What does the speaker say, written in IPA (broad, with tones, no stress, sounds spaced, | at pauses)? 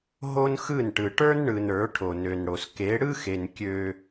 ɦ o˦ n x ɯ˦˨ n ʈ ɯ˨ ʈ ə˞˦ n ɳ ɯ˨ n ə˞˨˦ ʈʰ o˨ n ø˨ n ɽ o˨ s k e˨˦ ɽ ɯ˦ x e˨ n kʲ ø˦